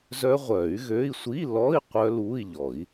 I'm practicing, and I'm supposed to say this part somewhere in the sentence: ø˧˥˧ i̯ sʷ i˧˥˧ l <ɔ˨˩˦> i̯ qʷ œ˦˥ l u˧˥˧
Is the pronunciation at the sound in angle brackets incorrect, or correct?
incorrect